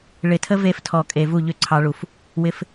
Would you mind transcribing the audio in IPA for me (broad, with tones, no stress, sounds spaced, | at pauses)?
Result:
ɭ ɪ˨ tʰ ə˦ v e˧ f tʰ ɔ˨ kʼ e˨ v u˦˨ ʎ ʏ˦ ǀʰ ɑ˧ ɭ u˨ f | w ɪ˧ f